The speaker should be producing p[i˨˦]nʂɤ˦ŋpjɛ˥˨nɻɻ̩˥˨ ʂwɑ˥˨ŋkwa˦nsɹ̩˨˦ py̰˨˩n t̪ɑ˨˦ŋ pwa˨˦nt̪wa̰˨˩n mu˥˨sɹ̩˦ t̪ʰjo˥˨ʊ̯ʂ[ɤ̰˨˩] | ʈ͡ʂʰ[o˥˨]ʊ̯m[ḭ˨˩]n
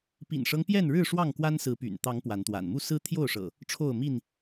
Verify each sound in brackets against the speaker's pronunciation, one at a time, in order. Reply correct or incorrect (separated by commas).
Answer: incorrect, correct, correct, incorrect